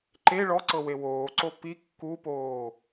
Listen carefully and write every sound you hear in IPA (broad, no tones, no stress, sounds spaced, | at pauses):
ǃ e ɭ ɔ ǀ ɤ w e w oː ǀ o p i kː u p oː